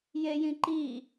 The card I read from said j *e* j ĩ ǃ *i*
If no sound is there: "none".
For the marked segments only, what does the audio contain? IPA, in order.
e, i

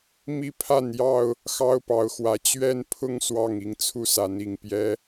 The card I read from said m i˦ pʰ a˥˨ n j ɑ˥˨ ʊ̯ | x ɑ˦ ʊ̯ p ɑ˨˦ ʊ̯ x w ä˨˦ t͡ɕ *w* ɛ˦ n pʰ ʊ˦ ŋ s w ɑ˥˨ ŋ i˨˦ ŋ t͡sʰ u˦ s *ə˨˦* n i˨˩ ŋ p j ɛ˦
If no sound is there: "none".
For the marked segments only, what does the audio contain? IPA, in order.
ɥ, a˨˦

